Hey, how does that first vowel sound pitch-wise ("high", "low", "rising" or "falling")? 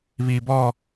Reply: low